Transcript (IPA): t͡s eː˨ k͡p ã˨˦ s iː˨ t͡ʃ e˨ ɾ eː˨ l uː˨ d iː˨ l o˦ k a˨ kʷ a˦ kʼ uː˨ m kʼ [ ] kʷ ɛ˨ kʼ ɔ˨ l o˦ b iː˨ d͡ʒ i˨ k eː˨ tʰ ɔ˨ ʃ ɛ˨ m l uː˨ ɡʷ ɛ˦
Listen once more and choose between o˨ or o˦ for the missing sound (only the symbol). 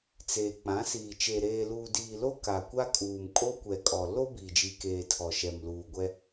o˦